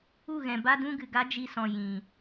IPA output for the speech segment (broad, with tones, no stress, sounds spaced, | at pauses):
u˦˨ ɣ ɛ̃˨ b a˦ d ũ˦ ɡ ɨ˨ ɡ a˦ d͡ʒ i˧ s ɔ̃˨ j ĩ˨